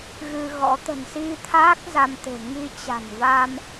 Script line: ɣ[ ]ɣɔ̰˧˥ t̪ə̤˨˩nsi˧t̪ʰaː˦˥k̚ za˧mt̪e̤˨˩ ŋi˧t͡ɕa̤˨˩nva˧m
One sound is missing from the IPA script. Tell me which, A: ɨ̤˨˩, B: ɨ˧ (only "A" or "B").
B